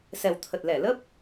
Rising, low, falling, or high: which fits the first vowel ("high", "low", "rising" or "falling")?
low